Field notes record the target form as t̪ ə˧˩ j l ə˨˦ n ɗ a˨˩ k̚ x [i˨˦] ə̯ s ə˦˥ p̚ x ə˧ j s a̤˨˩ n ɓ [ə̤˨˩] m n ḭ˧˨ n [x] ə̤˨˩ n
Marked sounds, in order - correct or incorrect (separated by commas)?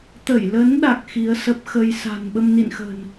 correct, incorrect, correct